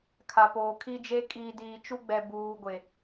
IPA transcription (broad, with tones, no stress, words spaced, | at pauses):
kʰa˨poː˨kʰi˦d͡ʒe˦ kʼiː˨diː˨ t͡ʃu˦ɡ͡bɛ˨ buː˨ ɡʷe˨